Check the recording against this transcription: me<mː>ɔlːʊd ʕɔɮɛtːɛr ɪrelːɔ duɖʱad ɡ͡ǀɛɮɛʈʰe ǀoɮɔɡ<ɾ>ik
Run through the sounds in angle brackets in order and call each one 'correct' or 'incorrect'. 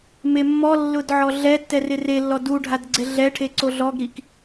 correct, correct

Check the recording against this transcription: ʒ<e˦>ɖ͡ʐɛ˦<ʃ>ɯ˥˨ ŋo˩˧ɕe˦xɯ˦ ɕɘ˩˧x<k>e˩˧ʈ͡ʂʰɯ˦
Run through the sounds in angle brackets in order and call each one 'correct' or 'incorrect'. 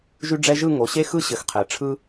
incorrect, incorrect, incorrect

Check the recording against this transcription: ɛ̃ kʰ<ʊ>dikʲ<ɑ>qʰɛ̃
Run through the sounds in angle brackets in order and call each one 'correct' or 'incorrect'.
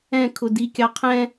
correct, correct

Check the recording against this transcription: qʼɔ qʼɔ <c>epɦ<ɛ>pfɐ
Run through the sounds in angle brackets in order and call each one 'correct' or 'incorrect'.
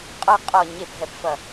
incorrect, correct

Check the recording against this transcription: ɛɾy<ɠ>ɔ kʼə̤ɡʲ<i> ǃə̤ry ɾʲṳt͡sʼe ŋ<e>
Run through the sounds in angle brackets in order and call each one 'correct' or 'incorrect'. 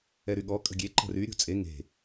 correct, incorrect, incorrect

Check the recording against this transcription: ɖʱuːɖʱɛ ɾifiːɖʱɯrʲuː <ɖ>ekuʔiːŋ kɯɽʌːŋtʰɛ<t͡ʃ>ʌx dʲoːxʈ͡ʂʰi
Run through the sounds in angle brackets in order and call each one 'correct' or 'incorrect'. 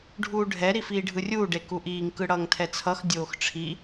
correct, incorrect

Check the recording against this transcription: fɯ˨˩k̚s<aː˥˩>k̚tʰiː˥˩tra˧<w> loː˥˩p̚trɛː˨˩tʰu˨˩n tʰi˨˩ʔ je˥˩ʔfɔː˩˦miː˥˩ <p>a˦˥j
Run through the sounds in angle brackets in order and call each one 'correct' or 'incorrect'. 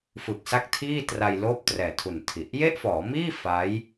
incorrect, incorrect, incorrect

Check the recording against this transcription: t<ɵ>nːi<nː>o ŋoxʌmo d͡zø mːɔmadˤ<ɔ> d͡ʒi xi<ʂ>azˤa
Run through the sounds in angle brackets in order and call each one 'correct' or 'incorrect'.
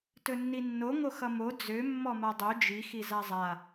correct, correct, incorrect, incorrect

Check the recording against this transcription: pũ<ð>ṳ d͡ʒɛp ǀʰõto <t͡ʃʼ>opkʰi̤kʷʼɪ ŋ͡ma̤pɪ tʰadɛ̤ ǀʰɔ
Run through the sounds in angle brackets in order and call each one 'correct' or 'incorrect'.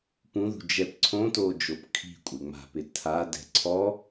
correct, incorrect

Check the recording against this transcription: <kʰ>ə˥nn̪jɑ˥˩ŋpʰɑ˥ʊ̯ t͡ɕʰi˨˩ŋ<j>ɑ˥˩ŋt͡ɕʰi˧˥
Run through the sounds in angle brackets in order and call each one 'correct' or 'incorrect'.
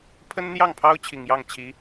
incorrect, correct

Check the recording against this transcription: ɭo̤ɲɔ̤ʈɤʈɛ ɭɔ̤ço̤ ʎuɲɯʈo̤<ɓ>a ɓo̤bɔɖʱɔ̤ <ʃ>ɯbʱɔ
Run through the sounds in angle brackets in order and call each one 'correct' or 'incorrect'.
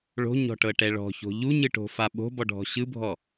incorrect, incorrect

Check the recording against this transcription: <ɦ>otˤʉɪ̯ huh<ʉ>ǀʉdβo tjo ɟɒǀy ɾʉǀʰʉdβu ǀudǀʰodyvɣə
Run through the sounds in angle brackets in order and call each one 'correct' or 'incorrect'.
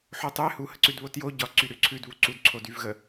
incorrect, incorrect

